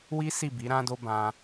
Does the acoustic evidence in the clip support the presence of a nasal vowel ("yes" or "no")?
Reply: yes